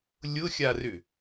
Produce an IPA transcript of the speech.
lʲ ʊ xʲ a r ʏ

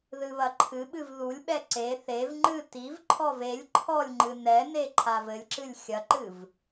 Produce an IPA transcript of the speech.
ð ɨ β ɐ ǃʰ ɨ ɓ ɨ v ð u lʲ ɓ ɛ ǀ e θ e v ŋ͡ǃ ɨ t i v ǃʰ ɔ v e lʲ ǃʰ ɔ lʲ ŋ͡ǃ ɨ n ɛ n e ǃʰ a v ɘ lʲ ǁ ɨ lʲ xʲ ɐ ǃ ɨ v

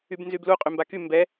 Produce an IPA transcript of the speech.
y b n z y b l u qʼ y m b a k y m b ɛ

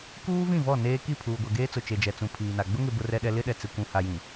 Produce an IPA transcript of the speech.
k uː˦ v ĩ˦˨ v ɔ˦˨ n eː˦ k i˦˨ pʰ uː˨ ɡʷ ɛ˨ ɡ eː˦ t͡s ʊ˨ t͡ʃ e˨ d͡ʒ ɛ˨ t͡s ũ˨ pʰ iː˨ n a˨ ɡ͡b ʊ˦ ŋ ɪ˨ b ʊ˦ r ɛ˦ ɗ ɛ˦ l ɪ˦ ɗ ɛ˨ t͡s ɪ˨ kʷ ũ˨ h a˨ j ĩ˨

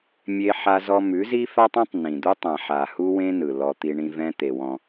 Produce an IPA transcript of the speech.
mʲ e˦ ħ a˦ z ɔ˦ m ʉ˨˦ z i˦ f a˦ tˤ ɔ̃˦ tˤ n ĩ˨ d̪ u˦ tˤ ã˨ ħ a˨ h u˦ w ẽ˦ n ɯ˨ l ɔ˦ t̪ i˦ ɳ ĩ˦ v ɛ̃˦ t̪ e˨ w ɔ̃˦

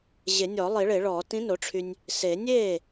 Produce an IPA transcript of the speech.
ʑ e˨˩˦ nʲ ɔ˨˩˦ lˠ i˨˩˦ ɭ e˨˩˦ ɭ ɔː˨˩˦ t ĩ˧˥ n o˩˥ ʈ͡ʂʰ y˧ nʲ | s e˨˩˦ nʲ eː˥˩

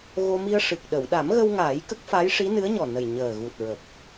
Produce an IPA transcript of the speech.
ɣ o˧ m i˧ ə̯ ʂ ɨ˨˩ k̚ ɗ ə˨˩˨ w ɗ a˨˩˦ m ɣ ə˧ w ŋ aː˨˩˦ j k ə˦˥ k̚ f a˧˥ j ʂ i˧˥ n ɨ˧˥ ə̯ ɲ ɔ˨˩ n ə˨˩ j ɲ əː˨˩ ɣ u˨˩ t̚ ɹ ə˨˩ k̚

